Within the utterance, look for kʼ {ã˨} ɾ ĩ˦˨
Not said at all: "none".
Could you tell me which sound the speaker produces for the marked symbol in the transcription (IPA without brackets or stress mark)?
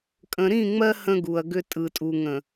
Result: ə̃˨